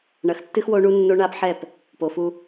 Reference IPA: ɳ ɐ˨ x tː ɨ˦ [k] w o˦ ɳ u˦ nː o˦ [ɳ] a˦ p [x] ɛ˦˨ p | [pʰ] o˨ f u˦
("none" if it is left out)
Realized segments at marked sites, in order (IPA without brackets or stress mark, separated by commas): x, ɳ, ħ, p